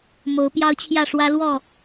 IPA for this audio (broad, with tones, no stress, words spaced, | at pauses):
mo˨˦ʊ̯pjɑ˦ʊ̯t͡ɕʰjä˥˨ʂwä˦ lwɔ˥˨